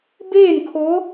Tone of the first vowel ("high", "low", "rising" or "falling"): falling